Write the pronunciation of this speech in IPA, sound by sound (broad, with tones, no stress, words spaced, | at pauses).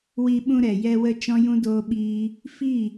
wi˧ ɓũ˧ɾɛ˨ jɛ˧wə˧ t͡ʃɔ̃˦jũ˦doː˦ɓiː˦ | fi˦˨